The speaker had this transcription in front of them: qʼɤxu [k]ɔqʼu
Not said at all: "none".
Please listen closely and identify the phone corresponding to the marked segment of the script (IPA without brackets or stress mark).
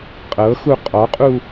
qʼ